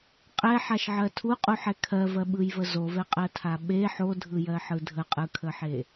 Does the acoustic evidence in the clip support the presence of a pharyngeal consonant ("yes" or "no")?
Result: yes